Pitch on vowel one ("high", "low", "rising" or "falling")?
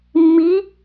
rising